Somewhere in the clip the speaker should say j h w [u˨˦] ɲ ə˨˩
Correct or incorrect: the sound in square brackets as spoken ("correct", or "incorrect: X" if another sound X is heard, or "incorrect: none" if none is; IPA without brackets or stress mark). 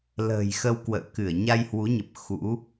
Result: correct